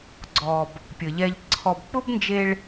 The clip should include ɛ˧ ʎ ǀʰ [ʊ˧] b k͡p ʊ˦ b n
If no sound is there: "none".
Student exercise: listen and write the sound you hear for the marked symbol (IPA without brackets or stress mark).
ɔ˧